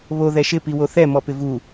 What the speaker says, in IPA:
β o ð ɛ ʃ ɪ p i w o θ ɛ m ɔ p ɪ v u

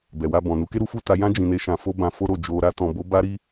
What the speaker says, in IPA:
b ɛ˨ w a˧ b ɔ̃˨ n u˨˦ k e˦ ɾ u˦ f u˦˨ t a˧ j ã˦ d͡ʒ ĩ˧ n e˦ ʃ ã˧ f o˦ b ã˧ f o˦ ɾ o˦˨ d͡ʒ o˧ ɾ a˦ t ɔ̃˧ b o˦ b a˦ ɾ i˦

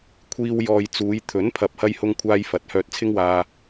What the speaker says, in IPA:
kʷʰ iː˧ w j ɔː˨ j t͡s uː˨˧ j t̪ʰ ɵ˨˥ n pʰ ɐ˨ p̚ h ɐ˧ j h ʊ˧ ŋ kʷʰ aː˧ j f ɐ˨ t̚ h œː˧ t̚ t͡sʰ ɪ˥ ŋ w aː˧

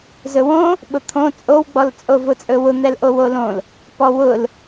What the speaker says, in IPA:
z ɵ w õ | ɓ ʊ t̪ʰ õ t͡sʼ o w ɡ͡b ɔ l t͡sʼ o v ʊ t͡sʼ ɵ w ʊ n̪ ɛ l ʔ o w o l õ l | p ɔ w ʊ l

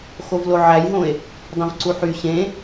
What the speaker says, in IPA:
x o v l o ʕ æ j ɦ õ e̯ | dˤ ẽ v ǀ u ħ y ɕ ẽ

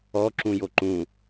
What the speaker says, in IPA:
ɔ ǁ ũ j o ǃ ũ

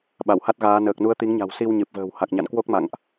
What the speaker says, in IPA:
ɓ a˧˩ w h a˦˥ t̚ ɣ aː˨˦ n əː˨˩ k̚ n u˨˦ ə̯ t̪ i˨˦ ŋ ɲ a̤˨˩ w s i˧ w ɲ ɨ˨˩ p̚ v ə̤ː˨˩ w h a˨˩ k̚ ɲ a̰˧˨ n k w o˦˥ k̚ m a̰˧˨ ŋ ʔ

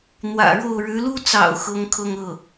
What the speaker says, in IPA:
n̪ w ä̰˨˩ ɻ o˥˩ ʊ̯ ɻ ɻ̩˧˥ l u˥ t͡s ɑ̰˨˩ ʊ̯ x ɤ˧˥ ŋ kʰ ɤ˥˧ ŋ ɤ˥˩

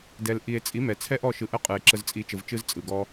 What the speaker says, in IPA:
d ɛ˨ l ʔ i˨ e̯ t͡sʼ i˨˦ m ɛ˨ t͡sʰ ɛ˦ ʔ ɔ˦˨ ʃ ɯ˨ ʔ ə˦ qʼ ɯ˨ e̯ ǁ ə˧ z t͡sʼ i˨˦ t͡ʃ ə˨ v t͡ʃ ɯ˦ z t͡sʼ ɯ˨ ɡ ɔ˦

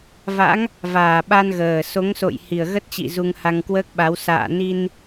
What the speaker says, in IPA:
v a̰˧˥ ŋ | v aː˨˩ ɓ a˧ n ɣ əː˨˩ s o˨˦ ŋ s o̰˧˨ j h i˨˩ ə̯ ɣ ə˦˥ t̚ t͡ɕ ḭ˧˨ z u˧ ŋ h a˧ ŋ k w əː˦˥ k̚ ɓ a˨˦ w s a̰ː˧˨ n i˧ n

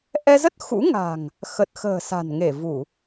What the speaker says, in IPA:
ʔ ɛ˧ z ə˦˥ t̚ x ṵ˧˥ ŋ a̤˨˩ ŋ | x ə˨˩ t̚ x ə̤ː˨˩ s a̤˨˩ n ŋ e˧˩ v u˧˩˨

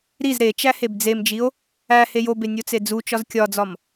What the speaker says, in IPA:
ɾ i z ɾ e t͡ʃ æ h e b d͡z e m d͡ʒ i o̯ | æ h e j o b e nʲ o t͡s e d͡z u t͡ʃ ɒ z kʲ ɒ d͡z ɒ m

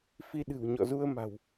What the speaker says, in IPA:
f i˧ ɗ ɨ̤˨˩ w ɲ ɔ̰˧˨ z u˧ ə̯ m a̤˨˩ w

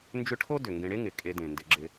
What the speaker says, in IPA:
n d͡ʒ ʏ˦ ʈʰ o˥ d ʏ˩ ŋ ɡ ẽ˨ ɽ e˦ ŋ ɪ˩ kʼ e˨ d ẽ˩ n d ɪ˨ ɡ͡ǁ ɪ˨

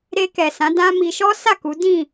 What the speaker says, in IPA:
ɾ e˧ k ɛ˨ s ã˨˦ d ã˦ m i˧ ʃ ɔ˦ s a˦˨ k u˨˦ d ĩ˦˨

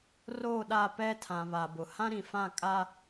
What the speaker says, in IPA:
r oː˦˨ ɗ a˦˨ p ɛ˦ tʰ ã˨ β a˨ b ʊ˨ h ã˦ ɾ ĩ˨ f ã˦˨ kʼ a˦

